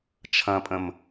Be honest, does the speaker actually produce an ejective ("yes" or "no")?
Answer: yes